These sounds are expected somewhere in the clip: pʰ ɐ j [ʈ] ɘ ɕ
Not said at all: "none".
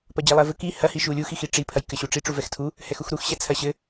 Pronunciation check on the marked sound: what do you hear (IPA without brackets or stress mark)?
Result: k